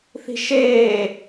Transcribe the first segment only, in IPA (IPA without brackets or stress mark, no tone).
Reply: θ